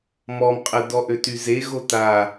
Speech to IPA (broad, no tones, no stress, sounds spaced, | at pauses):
m ɔ m qʼ ə d ɔ ʔ ø t y z e ɣ o t a